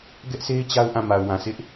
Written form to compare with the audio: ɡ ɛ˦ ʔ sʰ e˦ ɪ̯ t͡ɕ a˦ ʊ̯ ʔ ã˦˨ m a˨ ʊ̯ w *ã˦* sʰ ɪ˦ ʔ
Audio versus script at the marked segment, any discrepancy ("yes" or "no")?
yes